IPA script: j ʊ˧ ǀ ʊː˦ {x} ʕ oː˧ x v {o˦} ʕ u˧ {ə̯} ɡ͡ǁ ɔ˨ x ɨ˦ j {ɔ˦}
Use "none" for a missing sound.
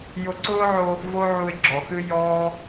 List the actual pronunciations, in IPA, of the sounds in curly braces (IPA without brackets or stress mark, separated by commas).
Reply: none, o˦, ɪ̯, ɔː˦